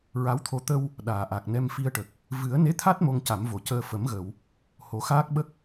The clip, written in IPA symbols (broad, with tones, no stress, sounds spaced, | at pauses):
ɹ a˧˥ w t̪ʰ o˧ t̪ ə˧ w | ɗ aː˨˩˨ ʔ a˨˩ k̚ n ɛ˧ m f i˧ ə̯ ʈ ə˨˩ k̚ | v ɨ˨˩˦ ə̯ n e˧˥ t̪ʰ a˦˥ t̚ m o˧ ŋ c a˨˩˦ m v o˨˩˨ c əː˧ f ə˨˩˦ m ɣ ə˨˩˨ w | h o˨˩˦ x aː˦˥ k̚ ɓ ə˦˥ k̚